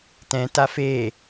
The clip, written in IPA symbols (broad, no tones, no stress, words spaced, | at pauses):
tɛ̃ tafe